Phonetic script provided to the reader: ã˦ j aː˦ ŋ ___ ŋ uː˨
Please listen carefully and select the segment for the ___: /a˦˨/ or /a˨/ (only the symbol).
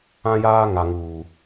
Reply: a˨